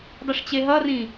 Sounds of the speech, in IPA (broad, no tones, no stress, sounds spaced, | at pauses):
dˤ ɯ ʂ t͡ɕ e ɦ ʌ r ĩ